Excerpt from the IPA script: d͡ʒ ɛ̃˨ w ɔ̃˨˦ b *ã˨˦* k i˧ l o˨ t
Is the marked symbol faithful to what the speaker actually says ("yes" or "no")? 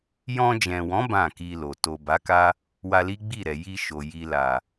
no